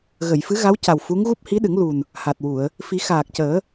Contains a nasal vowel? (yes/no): no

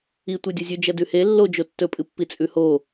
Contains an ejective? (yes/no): yes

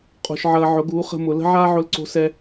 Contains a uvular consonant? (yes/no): yes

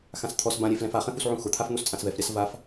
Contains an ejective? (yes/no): yes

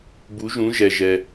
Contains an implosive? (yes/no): no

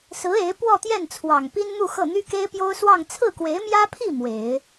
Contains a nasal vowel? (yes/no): no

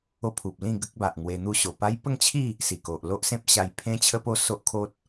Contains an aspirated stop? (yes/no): yes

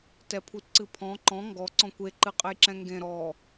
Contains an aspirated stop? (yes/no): yes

